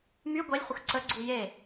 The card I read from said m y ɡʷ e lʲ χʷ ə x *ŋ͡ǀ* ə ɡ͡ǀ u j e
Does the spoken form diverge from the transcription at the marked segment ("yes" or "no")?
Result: yes